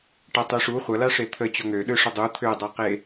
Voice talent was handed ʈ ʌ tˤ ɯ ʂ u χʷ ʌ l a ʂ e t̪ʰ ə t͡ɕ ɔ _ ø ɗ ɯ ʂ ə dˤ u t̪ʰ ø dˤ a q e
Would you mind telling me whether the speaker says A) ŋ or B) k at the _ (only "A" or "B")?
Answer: A